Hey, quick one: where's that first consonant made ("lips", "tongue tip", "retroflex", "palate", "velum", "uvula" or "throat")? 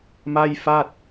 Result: lips